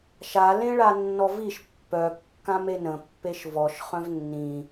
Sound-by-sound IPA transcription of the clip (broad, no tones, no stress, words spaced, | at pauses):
ʃa lẽɭanːɔviʃ pːœ kːãmenə̃ pːeʃvɔʃ χœ̃vnːĩ